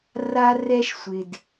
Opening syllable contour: high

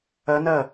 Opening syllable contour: rising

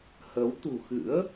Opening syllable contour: rising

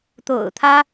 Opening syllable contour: low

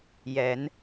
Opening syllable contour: low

